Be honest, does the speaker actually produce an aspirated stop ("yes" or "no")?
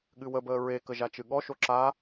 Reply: no